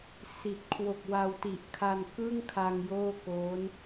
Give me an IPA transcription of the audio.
si˨˩t̚ kʰwo˨˩k̚wa˧wti˨˩ʔkʰa˧n kɯ˥˩ŋkʰa˧ŋ joː˥˩koː˦˥n

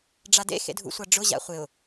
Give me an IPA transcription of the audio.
ɖ͡ʐadḛ xḛdʱṵsʷaɖ͡ʐʊ ʑa̰χʷɪʊ̯

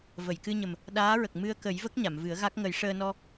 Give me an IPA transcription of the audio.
və˨˩˨jkɨ˧ɲə˨˩m | ɗaː˧˥ɹə˨˩k̚ mɨ˧ə̯kə˨˩˦jvə˦˥k̚ ɲa˨˩˨mvɨ˨˩˦ə̯ɣa˦˥k̚ ŋə˨˩˦jʂəː˧nɔ˧

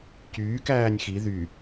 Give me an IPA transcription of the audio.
cyːkæːnʲ xi ðy

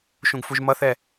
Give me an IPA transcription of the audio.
ʃũɡfuʒmʌθɛ

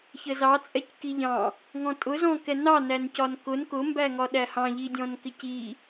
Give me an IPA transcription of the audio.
çəzɑt͡sʼɛc kiʎɑ̃ | ŋɔ̃tʼʊzɔ̃kɛ nɑnæncɒn kʊn kʊmbæŋɒ ɗæhɑ̃ʎidʲɔ̃n kɪci

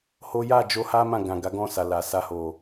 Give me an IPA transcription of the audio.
ho˦ ja˦˨d͡ʒo˧ ha˦ mã˦˨ɡã˨ɡa˨˦ ɡɔ̃˦˨sa˨la˨ sa˧ho˨

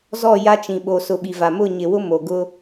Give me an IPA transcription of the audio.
zɔ˦˨ja˦t͡ʃĩ˨ ɓo˨sʊ˨ ɓi˨va˨ mʊ˦˨ɲɪ˨wʊ˦ mo˨ ɡʊ˦

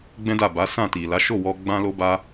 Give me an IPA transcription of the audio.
ɡ͡bɛ̃˦da˦˨ ba˨˦sã˦˨ti˨ la˨˦ ʃo˦˨wɔ˧ ɡ͡bã˦lo˦ba˦

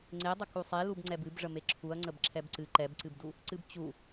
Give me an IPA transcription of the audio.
ŋ͡ǀedˤə kusˤe lubŋ͡ǀɛbɨb ʐəmeǁʰuɐ̯ŋ͡ǀəb ǁʰɛbǀɨ ǃɛbǀɨbdu | ǀɨbt͡ɕu

